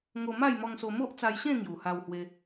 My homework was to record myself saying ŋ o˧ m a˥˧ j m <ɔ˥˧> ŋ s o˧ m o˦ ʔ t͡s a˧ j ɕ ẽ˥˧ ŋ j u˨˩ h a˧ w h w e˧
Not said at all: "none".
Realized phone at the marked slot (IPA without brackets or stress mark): ɔ˧